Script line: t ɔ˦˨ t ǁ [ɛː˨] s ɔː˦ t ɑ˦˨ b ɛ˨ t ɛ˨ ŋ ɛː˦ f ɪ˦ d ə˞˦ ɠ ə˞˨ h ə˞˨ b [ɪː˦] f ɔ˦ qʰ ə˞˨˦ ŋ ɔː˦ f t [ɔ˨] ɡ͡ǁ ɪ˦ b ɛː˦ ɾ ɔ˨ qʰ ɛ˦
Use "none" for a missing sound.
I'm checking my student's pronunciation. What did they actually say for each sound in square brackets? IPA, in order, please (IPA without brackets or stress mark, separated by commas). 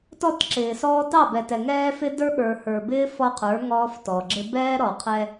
ɪː˨, ɪː˦, ɔ˨